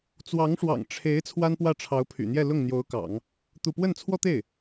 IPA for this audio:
t͡s w ɑ˧˥ ŋ ʂ w ɑ̰˨˩ ŋ ʈ͡ʂʰ e˧˥ ɪ̯ t͡sʰ w a˥ n p w ä˥˩ ʈ͡ʂʰ ɑ˧˥ ʊ̯ pʰ y̰˨˩ n̪ j ɛ˥˧ l ʊ˥˩ ŋ n̪ j o˧˥ ʊ̯ k ɑ̰˨˩˦ ŋ | t̪ u˥˧ p w ə˥˩ n t͡sʰ w ɔ˥ t̪ e˥˩ ɪ̯

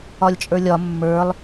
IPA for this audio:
ɒ lʲ t͡ʃʼ ə˞ lʲ ɒ mː ə˞ lˠ

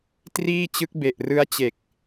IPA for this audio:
t r iː˥˩ t͡ɕ ɯ˦˥ k̚ b e˨˩ ʔ r ɯ˦˥ a̯ t͡ɕ e˨˩ k̚

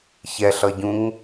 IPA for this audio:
ç ɛ ɬ ʌ ɟ ũ ŋ

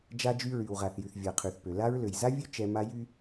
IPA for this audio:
d͡ʒ a˦ d͡ʒ y˦ ɹ y˨ w ʁ a˨ θ j y˨ θ vʲ a˨ qʰ y˨ θ p ø˨ l a˦ ɹ l ø˨ j z a˦ vʲ ø˦ t͡ʃ ɛ˦ m a˦ j y˦

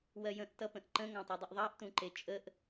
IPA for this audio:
w ɜ j ə̃ ʔ t ʌ p ə̃ ʔ ǃ ə̃ ŋ ɑ̃ tˤ u dˤ ə ʔ ðˤ ɑ ʔ t ũ ǃ e t͡ʃʼ ə ʔ

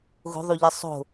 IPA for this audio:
ɣ o̤ ðˤ u ʎ ɨ sˤ o̤

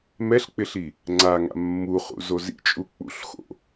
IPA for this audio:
m ɛ ɬ k͡p ɪ ɬ i | ŋ͡ǀ a ŋ a̰ mː u χ ṵ z o z ḭ t͡ʃʼ u k͡p ṵ ɬ x o̰

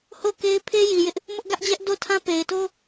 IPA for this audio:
h o˦˨ k e˦ ɪ̯ pʰ e˦ j i˨ j ɪ˦ ʔ | m ʊ˦ ʔ ɡ ä˦ ʔ d͡ʑ ɛ˦ ʔ d o˦˨ tʰ ã˦ p e˨ ɪ̯ t o˦

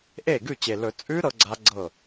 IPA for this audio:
ʔ e˥˩ ɡ ʉ˥˩ t͡ɕ e˨˩ l ɵ˨˩˦ t͡sʼ ʉ˦˥ ɾ ɤ˦˥ ɡ͡ǀ a˦˥ ɡ͡ǀ ɤ˥˩

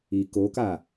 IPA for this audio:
i k o k a

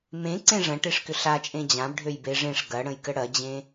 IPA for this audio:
m ẽ ǀ ẽ ʐ ɐ̃ ʈ e ʂ k ʏ ɬ a t͡ʃʼ ẽ d͡ʑ ã b ɖʱ ø j b e ʐ ẽ ʂ ɡ ɐ ɽ ə̃ j k ə ɽ ɐ d͡ʑ ẽ

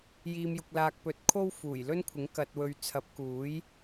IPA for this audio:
j iː˧ m j ʊ˧ k̚ l aː˧ k̚ p ɵ˨˥ t̚ kʰ o˥ w f uː˨˩ j l ɵ˥ n kʷʰ ɪ˨˥ ŋ k ɐ˧ t̚ w ɵ˧ ɥ t͡sʰ ɐ˨˥ p̚ k uː˨˥ j

